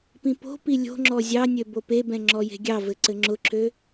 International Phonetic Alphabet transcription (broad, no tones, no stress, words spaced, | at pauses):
pĩpo̤pi lʲo̤ŋ͡ǁɔ zʲɑnʲø bopebɛ̃ ŋ͡ǁɔje̤ɡʲɑvɘ ǀɘŋ͡ǁʊǁʰø